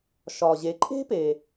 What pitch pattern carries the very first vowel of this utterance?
low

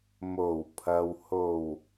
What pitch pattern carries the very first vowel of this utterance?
low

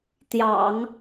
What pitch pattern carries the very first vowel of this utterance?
low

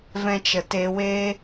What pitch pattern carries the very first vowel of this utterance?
high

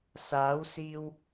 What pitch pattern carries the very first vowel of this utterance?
rising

